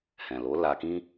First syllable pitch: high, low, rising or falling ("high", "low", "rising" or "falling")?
low